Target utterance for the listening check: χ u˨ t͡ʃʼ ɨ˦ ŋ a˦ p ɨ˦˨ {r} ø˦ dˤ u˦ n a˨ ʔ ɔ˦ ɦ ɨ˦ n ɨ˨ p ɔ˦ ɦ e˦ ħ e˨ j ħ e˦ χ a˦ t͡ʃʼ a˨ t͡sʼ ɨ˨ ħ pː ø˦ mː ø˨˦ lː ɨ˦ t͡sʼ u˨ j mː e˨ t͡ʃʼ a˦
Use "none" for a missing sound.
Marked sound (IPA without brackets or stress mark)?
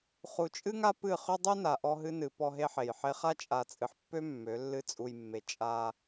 χ